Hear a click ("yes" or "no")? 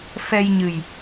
no